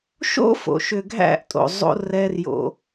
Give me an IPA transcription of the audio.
ʃ o̰˦ f o̰˨ ʃ ʏ˨ ɡʱ æ̰˦˨ ʔ tʼ o̰˨ zˤ o̰˧ r ɛ˧ r j o̰˧

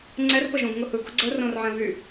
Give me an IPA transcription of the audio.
ŋ͡ǀ ɛ r p ə ʒ õ ɡ ŋ ʊ h ɯ ɡ o ɡ͡ǀ ə r õ r ʕ ɛ̃ β y

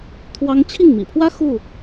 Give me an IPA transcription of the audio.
t̪ʰ w ɑ˦ ŋ t͡ɕʰ i˥˨ ŋ m ḭ˨˩ pʰ w ä˦ x u˥˨

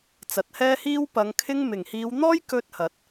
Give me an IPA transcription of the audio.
t͡s ɐ˨ t̚ h ɛː˥ h iː˥ w p ɐ˨˧ ŋ kʰ ɪ˥ ŋ m ɪ˨˩ ŋ h iː˨˧ w n̪ ɔː˥ j k ɵ˥ t̚ h ɐ˨˥ t̚

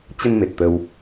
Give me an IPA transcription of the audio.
t͡ɕ ə˧ n m e˨˩ t̚ t̪ ə˧ w

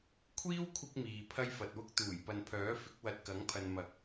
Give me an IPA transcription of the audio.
kʷʰ iː˥ w kʷʰ ɪ˧ k̚ m iː˨ pʰ ɐ˥ j f ɐ˨ t̚ w ʊ˥ k̚ t̪ uː˨˩ j p ɐ˨ n pʰ œː˨˥ f ɪ˨˥ k̚ w ɐ˧ t̚ k ɐ˨˥ ŋ pʰ ɐ˨ n m ɐ˨˥ k̚

